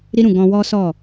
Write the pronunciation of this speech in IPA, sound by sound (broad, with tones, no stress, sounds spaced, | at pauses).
ɾ i˦ ɾ ũ˦˨ ɡ ɔ̃˧ w ɔ˦ s ɔ˦˨